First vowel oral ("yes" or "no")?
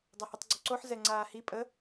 yes